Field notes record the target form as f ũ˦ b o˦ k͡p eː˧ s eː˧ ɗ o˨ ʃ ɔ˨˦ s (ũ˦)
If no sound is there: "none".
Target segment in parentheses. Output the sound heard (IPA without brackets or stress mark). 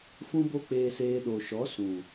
ũ˨